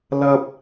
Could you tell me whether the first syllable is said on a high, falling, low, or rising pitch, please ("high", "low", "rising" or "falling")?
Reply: high